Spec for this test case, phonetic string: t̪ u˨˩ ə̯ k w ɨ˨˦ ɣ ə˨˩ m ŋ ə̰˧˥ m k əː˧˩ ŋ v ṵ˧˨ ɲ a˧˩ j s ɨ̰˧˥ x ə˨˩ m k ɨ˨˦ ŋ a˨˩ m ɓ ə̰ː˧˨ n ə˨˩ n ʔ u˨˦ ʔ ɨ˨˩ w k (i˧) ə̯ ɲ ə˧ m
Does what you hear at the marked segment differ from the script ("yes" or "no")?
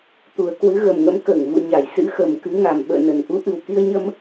no